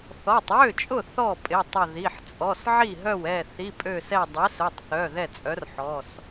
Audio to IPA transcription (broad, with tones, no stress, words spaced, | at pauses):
θɔ˩˧˩tˤwø˥˩t͡ʃʼʊ˥˩ θɔ˥˩pʼɪ˩˧˩tˤʊ˧˩ði˩˧˩ħ t͡sʼɔ˩˧˩sʕi˥˩ɦœ˥˩wɛ˥˩ θi˩˧˩pʼø˧˩sɛ˧˩ dˤɛ˨˥sœ˩˧˩tˤθœ˩˧˩ ðɛ˥˩t͡sʼœ˨˥rħɔ˩˧˩s